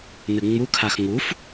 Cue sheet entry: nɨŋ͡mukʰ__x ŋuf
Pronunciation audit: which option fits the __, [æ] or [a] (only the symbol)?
a